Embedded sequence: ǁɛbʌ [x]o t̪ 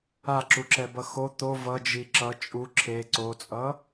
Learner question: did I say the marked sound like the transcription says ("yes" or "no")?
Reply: yes